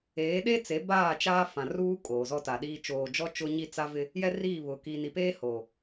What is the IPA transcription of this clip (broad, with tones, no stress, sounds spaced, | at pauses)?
eː˨˦ ɗ e˦ t͡s e˨˦ b aː˦˨ t͡ʃ aː˦ f ã˨ r uː˦ kʼ oː˨ z ɔ˦ t a˨ ɗ iː˦ t͡ʃ oː˨ d͡ʒ ɔ˦ t͡ʃ ʊ˦ ɲ i˦ t͡s a˦ v ɪ˦ | j ɛ˦ r iː˦˨ β ʊ˨ k i˨ n i˨ p eː˦ h o˨